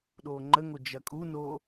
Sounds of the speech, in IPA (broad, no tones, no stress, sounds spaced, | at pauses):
ɗ oː ŋ͡ǃ ə ŋ o d͡ʒ ɐ kʼ u n oː